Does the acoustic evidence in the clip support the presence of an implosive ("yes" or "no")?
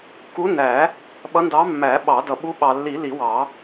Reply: yes